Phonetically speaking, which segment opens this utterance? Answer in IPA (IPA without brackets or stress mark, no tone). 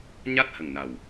ɲ